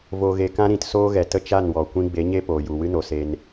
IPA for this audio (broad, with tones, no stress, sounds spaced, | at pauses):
v o˨ ɣ e˨ k ã˦ ɾ ĩ˨ t s oː˦ ɣ ɛ˨ t ə˦ t͡ʃ a˦˨ n w ɔ˨ kʷ ĩ˧ ɡ͡b e˨˦ ɲ e˦ p oː˨ j u˨ w ɨ˦ n o˨ s e˧ n